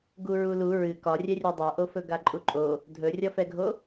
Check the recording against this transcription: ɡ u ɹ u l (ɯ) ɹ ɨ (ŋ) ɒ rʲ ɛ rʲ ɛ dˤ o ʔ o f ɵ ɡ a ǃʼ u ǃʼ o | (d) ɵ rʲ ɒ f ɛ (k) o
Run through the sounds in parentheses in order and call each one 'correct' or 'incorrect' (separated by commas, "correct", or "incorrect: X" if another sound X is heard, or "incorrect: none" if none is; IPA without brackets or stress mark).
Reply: incorrect: u, incorrect: k, incorrect: dʱ, incorrect: ɡʱ